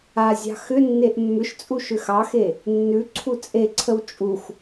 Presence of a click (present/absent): present